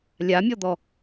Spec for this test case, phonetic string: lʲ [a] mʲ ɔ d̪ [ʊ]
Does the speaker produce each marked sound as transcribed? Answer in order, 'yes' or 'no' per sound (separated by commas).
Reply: yes, no